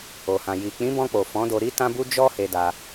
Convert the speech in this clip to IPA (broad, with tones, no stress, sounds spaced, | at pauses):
o˨ h ã˨ j i˨ k͡p ĩ˨˦ b ɔ̃˧ k͡p o˨ f ɔ̃˨˦ d o˧ ɾ i˦ t ã˦ b u˦ d͡ʒ ɔ˦ h e˧ d a˧